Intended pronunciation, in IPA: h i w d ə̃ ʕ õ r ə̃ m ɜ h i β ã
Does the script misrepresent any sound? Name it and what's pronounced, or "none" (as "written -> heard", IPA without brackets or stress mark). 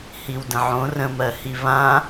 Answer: none